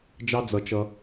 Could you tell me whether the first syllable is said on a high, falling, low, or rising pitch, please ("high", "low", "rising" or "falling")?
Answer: high